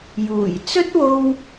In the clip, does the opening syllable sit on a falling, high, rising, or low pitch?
low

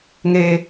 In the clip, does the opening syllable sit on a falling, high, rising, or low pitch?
high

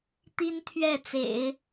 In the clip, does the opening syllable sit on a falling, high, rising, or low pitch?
high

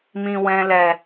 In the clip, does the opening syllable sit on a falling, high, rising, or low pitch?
low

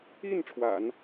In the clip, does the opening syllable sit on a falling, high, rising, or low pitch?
falling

